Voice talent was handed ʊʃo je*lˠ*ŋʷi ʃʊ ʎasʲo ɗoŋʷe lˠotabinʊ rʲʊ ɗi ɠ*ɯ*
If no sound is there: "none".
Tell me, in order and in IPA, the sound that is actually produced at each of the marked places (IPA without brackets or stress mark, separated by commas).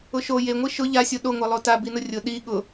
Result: none, ʊ